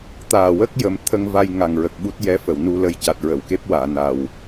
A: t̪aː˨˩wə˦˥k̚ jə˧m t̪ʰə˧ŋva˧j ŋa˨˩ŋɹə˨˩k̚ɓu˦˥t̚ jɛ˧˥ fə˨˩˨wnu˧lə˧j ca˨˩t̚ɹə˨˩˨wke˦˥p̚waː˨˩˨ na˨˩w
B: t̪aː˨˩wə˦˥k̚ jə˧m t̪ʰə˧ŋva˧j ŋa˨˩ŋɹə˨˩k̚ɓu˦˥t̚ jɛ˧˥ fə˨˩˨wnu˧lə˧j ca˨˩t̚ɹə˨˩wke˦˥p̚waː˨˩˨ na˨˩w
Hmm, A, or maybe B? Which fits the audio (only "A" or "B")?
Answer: A